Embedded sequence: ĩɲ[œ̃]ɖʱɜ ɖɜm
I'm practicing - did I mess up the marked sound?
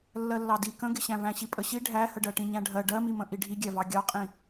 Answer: yes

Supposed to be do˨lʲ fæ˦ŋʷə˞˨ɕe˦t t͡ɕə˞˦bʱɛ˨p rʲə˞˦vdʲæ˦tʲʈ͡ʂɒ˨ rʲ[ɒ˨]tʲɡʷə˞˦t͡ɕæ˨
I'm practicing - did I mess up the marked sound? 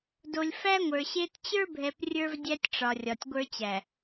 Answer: no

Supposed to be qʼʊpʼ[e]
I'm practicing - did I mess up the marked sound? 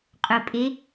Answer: no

